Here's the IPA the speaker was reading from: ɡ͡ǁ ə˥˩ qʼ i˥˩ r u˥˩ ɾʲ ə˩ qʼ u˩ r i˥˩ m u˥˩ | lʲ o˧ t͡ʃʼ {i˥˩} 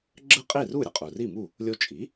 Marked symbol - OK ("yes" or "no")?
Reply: no